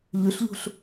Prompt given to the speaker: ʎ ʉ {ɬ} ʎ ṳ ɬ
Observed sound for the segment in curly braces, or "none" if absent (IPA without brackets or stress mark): ɬ